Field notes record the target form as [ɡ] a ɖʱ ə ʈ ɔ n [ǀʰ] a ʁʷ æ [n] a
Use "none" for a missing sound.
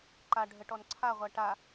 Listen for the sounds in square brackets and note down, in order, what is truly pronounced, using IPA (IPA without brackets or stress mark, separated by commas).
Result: ǃ, ǀʰ, ʈ